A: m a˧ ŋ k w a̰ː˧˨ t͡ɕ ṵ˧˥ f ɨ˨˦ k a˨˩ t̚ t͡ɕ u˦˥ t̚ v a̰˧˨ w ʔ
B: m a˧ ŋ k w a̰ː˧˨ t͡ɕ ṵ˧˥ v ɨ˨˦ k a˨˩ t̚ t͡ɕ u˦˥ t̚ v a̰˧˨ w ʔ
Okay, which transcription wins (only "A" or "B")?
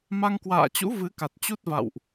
B